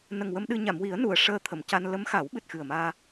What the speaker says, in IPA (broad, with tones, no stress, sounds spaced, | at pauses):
n ə˨˩ ŋ w ə˧ m ɗ ɨ˧ ɲ a˨˩˨ m w i˨˩˦ ə̯ n u˨˩˨ ə̯ ʂ əː˧ t̪ʰ ə˨˩˨ m c a˧ n l ə˧˥ m x a˨˩˦ w ɓ ɨ˨˩ t̚ x ɨ˨˩ ə̯ m aː˧